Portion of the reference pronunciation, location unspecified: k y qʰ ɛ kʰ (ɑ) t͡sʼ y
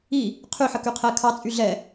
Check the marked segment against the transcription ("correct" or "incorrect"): correct